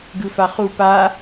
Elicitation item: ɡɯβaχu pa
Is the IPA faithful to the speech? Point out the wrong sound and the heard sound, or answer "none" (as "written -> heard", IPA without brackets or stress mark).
β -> f